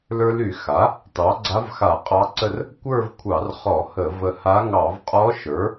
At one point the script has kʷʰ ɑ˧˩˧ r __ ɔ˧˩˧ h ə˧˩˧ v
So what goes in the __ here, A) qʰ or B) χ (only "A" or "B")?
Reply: B